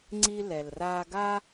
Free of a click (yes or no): no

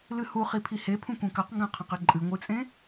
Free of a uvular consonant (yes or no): no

